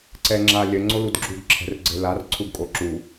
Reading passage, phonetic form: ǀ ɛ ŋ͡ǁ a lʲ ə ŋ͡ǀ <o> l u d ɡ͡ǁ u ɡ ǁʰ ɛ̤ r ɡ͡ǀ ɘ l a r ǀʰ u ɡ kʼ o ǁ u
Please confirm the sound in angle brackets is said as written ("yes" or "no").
yes